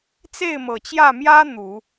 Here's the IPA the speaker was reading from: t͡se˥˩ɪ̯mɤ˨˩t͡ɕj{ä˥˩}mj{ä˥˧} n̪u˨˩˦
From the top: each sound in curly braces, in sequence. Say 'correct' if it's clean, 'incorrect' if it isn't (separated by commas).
correct, incorrect